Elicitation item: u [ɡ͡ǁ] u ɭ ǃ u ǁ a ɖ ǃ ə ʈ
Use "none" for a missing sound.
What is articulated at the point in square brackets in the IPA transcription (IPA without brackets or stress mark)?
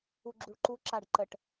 ɡ͡ǁ